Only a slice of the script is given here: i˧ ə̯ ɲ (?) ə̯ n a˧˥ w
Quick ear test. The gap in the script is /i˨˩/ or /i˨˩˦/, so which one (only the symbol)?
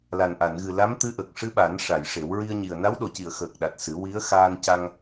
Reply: i˨˩